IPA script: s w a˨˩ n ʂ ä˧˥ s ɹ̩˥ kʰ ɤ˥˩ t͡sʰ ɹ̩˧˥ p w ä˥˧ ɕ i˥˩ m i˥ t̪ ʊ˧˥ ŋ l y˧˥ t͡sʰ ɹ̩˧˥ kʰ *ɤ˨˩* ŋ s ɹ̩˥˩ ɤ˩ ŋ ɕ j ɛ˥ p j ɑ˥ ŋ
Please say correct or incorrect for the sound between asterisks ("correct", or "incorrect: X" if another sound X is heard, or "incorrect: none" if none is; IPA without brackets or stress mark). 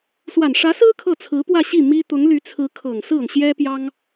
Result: correct